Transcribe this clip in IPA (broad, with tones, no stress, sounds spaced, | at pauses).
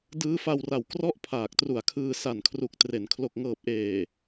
d ɯː˦˥ f a˧ w r a˨˩ w k r ɔ˥˩ ʔ pʰ aː˨˩ k̚ t r u˨˩ a̯ kʰ ɯː˧ s a˨˩ n kʰ r u˨˩ k̚ t r e˩˦ n kʰ l o˨˩ k̚ ŋ ɤː˨˩ p̚ ʔ eː˨˩